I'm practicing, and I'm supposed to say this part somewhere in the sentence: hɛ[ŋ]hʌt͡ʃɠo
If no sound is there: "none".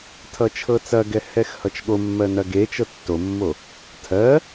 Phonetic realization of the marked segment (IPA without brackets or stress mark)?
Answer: x